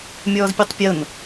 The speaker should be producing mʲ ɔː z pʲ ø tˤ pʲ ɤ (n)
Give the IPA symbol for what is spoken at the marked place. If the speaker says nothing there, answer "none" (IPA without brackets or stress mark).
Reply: n